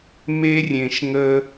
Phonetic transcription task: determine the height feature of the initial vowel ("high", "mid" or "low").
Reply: mid